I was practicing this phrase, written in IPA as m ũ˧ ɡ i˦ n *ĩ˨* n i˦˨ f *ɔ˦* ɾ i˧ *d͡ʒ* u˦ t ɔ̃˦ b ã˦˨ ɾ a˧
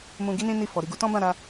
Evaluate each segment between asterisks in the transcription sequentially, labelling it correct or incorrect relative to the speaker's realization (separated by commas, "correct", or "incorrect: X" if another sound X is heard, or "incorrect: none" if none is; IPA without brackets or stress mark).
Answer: incorrect: ĩ˦, incorrect: ɔ˨, incorrect: ɡ